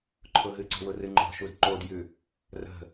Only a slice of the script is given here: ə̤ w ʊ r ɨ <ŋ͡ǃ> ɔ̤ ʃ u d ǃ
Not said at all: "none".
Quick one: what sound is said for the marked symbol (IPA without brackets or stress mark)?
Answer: ŋ͡ǃ